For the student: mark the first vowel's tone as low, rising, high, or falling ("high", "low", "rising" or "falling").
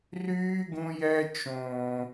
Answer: high